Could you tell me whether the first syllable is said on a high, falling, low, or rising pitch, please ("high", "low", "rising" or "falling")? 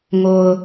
low